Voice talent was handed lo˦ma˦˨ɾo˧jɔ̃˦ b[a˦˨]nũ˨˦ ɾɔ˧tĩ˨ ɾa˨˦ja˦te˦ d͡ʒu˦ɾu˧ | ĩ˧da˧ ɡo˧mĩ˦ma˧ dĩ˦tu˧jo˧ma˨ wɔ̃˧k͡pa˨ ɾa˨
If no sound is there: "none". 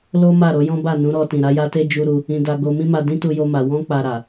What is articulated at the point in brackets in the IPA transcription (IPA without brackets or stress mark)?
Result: a˦˨